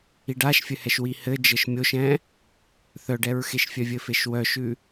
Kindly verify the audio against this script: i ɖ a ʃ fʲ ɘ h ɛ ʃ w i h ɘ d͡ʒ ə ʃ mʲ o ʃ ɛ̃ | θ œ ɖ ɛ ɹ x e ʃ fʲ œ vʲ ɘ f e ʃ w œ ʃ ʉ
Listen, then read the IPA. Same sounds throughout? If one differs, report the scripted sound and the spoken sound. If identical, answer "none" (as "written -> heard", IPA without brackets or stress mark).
none